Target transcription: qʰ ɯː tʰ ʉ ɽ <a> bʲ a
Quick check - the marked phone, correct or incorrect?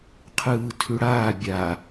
incorrect